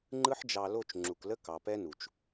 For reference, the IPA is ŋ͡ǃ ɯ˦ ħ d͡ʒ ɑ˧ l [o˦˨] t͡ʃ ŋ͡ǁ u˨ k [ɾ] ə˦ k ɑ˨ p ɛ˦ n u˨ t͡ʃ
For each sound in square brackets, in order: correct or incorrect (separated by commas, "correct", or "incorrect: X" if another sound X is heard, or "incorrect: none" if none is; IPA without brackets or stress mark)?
correct, incorrect: l